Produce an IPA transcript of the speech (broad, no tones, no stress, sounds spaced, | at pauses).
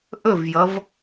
ʔ ɵ v j ʌ v